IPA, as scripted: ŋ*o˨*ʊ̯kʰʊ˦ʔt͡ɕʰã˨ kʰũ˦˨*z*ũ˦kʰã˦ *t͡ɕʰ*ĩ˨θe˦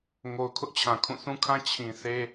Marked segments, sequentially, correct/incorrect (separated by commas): correct, incorrect, correct